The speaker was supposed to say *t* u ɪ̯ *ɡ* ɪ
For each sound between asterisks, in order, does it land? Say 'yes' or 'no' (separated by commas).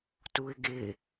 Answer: yes, yes